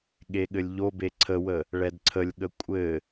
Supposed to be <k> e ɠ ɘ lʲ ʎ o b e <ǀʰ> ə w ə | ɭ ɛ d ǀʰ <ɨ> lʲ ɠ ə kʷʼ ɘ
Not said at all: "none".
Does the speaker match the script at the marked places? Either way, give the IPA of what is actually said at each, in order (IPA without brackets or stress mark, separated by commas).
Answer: ɠ, ǀʰ, ə